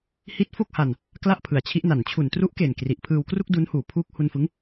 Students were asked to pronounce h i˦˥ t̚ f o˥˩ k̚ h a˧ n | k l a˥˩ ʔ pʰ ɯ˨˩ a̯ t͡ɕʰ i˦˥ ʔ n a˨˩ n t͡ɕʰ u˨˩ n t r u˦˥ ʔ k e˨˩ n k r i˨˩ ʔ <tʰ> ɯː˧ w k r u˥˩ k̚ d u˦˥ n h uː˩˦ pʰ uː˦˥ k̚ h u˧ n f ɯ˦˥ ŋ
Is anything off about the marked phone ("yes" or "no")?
yes